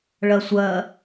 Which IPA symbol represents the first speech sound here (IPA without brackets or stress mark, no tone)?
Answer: ɭ